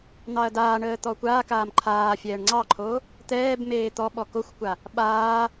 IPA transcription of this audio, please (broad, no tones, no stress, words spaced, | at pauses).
n̪ɑɐ̯daːɳəː t̪ɔkʷaːkaːm ǃʰaːfʲɛːɳ ŋ͡ǀɑǃʰo | t̪ɛːb meːt̪ɔɓɔ koxʷkʷa | ɓaː